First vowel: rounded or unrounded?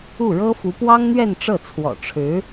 rounded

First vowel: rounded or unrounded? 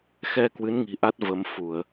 unrounded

